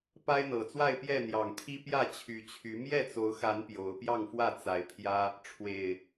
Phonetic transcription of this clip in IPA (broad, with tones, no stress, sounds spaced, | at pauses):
p a˦ ɪ̯ n̪ ɤ˨˩ t͡s w a˥˨ ɪ̯ p j ɛ˥˨ n̪ j ɑ˨˩ ŋ t̪ʰ i˦ p j ä˥˨ t͡ɕʰ y˨˦ t͡ɕʰ y˨˦ m j ɛ˥˨ t͡s o˨˦ ʊ̯ x a˨˦ n p j o˨˦ ʊ̯ p j ɑ˥˨ ŋ f w ä˥˨ t͡s a˨˦ ɪ̯ pʰ j ä˦ | ʈ͡ʂʰ w e˨˩ ɪ̯